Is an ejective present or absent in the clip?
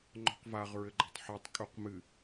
present